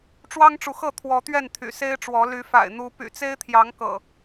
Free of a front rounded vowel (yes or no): no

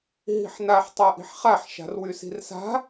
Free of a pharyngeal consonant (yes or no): no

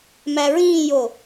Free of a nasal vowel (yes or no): no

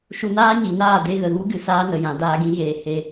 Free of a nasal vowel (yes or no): no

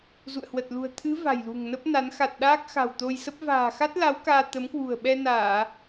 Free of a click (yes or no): yes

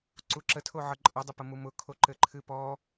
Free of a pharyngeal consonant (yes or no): no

